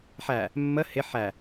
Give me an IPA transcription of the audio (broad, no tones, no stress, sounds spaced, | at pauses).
ħ æ | mː ə h ɪ ħ æ